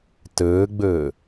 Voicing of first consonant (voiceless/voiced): voiceless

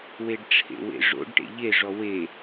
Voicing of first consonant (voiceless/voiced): voiced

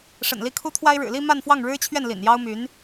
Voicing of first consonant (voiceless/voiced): voiceless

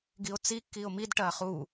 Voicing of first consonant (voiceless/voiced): voiced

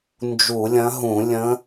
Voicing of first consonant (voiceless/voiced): voiced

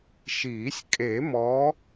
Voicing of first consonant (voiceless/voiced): voiceless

